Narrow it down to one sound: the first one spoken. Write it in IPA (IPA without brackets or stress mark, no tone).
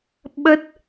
ɓ